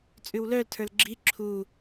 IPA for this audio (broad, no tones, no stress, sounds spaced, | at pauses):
t͡sʼ ʉ w l œ l tʰ ə˞ l ɡ͡ǁ i ǁʰ u